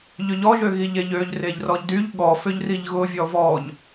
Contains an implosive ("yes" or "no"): yes